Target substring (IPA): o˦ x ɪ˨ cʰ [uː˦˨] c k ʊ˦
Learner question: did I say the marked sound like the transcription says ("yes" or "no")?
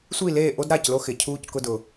no